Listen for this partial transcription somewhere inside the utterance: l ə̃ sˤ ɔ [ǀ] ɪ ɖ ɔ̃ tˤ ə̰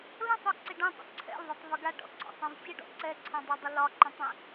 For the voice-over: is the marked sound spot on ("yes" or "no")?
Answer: yes